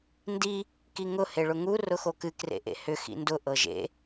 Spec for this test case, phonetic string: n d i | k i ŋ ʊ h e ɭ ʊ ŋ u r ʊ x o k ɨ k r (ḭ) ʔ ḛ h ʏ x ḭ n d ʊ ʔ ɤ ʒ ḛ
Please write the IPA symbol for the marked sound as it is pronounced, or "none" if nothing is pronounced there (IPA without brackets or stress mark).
ḛ